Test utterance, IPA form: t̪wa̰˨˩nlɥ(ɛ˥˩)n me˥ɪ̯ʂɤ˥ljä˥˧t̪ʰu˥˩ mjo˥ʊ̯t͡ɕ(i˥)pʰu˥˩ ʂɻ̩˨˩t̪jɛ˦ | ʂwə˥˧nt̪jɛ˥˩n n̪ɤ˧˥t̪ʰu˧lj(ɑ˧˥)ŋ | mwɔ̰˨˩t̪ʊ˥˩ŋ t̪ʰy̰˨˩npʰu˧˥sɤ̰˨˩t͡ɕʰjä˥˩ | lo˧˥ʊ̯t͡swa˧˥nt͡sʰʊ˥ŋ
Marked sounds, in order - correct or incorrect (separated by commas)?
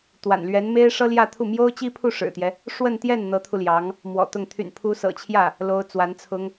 incorrect, correct, correct